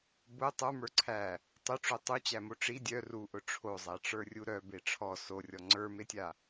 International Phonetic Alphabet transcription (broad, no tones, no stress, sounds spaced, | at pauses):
b ʊ tˤ ə˞ m ə˞ ǀʰ æ | tˤ ʊ ʈ͡ʂ o tˤ u t͡ɕ æ m o ʈ͡ʂ i dʲ œ r u ʔ ʊ ʈ͡ʂʰ o zˤ æ ʈ͡ʂ ə˞ rʲ u ɾ œ b e ʈ͡ʂʰ ɔ s o rʲ ɔ ŋ͡ǀ ə˞ m e tʲ a